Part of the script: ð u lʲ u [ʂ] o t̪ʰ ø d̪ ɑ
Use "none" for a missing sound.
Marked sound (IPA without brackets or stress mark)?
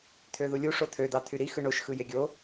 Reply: ʂ